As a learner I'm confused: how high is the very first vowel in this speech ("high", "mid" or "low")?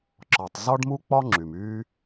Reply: low